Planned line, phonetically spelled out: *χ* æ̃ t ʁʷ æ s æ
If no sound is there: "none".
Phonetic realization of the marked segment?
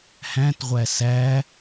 h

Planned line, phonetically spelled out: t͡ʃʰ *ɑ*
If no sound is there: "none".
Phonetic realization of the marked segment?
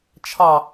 ɑ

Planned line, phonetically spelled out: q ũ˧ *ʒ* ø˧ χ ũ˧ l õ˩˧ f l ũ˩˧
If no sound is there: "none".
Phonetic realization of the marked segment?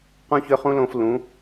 ç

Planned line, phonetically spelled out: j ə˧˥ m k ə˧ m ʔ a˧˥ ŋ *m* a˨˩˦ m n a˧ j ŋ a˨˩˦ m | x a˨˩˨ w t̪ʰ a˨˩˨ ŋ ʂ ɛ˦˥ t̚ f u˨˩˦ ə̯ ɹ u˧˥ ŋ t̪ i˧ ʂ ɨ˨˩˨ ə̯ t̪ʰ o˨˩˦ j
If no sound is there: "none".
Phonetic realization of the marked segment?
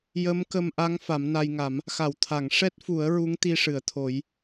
f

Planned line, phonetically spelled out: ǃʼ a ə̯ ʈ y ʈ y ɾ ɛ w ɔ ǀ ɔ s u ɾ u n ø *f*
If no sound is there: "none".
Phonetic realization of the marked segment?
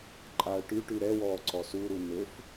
f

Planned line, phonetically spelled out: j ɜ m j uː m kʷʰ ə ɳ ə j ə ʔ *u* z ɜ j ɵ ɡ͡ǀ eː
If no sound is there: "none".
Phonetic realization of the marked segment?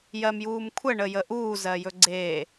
uː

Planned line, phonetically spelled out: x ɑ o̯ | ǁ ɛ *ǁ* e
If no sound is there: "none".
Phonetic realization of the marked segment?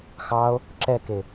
k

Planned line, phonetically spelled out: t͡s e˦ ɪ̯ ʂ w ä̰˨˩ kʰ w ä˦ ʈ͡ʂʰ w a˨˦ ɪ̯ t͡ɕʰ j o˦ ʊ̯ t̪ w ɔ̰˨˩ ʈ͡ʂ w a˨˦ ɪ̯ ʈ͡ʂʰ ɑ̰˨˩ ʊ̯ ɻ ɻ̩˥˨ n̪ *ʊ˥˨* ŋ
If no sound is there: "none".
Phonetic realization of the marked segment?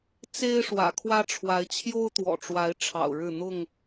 ʊ˥˨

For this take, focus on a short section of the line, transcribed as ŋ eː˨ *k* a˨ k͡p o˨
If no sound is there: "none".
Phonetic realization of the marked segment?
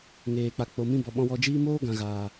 k͡p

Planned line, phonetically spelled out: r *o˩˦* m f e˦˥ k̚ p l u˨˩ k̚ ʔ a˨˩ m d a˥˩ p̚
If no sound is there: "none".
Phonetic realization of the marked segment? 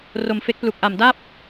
o˨˩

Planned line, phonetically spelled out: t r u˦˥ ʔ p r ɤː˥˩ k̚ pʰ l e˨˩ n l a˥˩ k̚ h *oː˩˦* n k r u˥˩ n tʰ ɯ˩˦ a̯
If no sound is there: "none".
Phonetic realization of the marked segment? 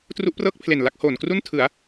oː˩˦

